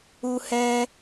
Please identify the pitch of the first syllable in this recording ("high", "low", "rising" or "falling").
high